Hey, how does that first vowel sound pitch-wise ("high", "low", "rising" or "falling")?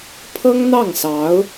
high